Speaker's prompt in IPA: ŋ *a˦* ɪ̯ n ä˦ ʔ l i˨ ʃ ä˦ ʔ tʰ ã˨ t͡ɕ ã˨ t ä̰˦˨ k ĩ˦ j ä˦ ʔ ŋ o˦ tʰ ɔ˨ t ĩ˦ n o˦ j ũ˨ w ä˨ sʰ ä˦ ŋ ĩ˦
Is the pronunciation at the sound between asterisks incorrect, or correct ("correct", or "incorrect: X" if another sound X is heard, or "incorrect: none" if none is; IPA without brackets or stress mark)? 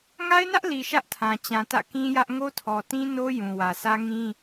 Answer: correct